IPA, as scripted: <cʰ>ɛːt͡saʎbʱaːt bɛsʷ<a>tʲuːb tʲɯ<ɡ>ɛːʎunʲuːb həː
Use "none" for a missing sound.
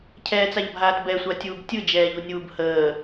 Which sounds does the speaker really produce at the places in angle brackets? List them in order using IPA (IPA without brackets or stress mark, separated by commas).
cʰ, a, d͡ʒ